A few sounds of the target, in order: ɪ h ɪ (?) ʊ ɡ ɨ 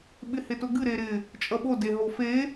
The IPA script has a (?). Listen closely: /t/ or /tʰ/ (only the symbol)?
t